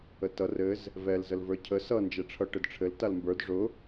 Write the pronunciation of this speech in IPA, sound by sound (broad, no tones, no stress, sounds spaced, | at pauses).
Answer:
ə t ʌ r ɘ z | v ɛ l z ə l v ə˞ cʰ ə s ʌ n d͡ʒ ɛ ʈ͡ʂʰ ʌ ʈ ɘ d ʈ͡ʂʰ ɘ l t a l m b ə˞ d ʐ ʊ